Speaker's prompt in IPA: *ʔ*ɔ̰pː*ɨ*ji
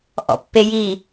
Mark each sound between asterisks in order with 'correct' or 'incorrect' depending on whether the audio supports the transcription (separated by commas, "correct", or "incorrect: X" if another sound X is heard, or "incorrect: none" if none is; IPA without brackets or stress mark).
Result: correct, incorrect: e